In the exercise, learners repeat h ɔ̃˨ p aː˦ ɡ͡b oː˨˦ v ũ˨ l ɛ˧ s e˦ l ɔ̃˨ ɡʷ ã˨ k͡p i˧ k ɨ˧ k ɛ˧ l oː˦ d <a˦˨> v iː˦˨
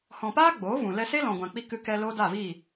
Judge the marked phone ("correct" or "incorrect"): correct